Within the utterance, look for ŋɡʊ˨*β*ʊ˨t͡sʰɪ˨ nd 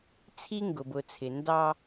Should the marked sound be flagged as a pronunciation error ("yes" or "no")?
yes